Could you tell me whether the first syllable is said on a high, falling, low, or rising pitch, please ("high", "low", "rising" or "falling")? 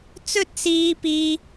high